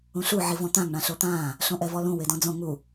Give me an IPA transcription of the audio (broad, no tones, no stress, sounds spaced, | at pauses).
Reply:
ũ ɬ u ʕ i v ɔ̃ t̪ ã ŋ ɳ ã ɬ o t̪ ãː | ɬ õ ʔ ɛ v ɔ l ũ w e d ɔ̃ d͡z õ ŋ u